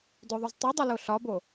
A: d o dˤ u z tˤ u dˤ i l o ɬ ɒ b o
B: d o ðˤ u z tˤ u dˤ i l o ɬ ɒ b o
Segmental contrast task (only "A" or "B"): B